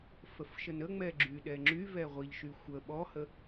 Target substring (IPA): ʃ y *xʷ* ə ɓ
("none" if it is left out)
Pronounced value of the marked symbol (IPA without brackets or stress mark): xʷ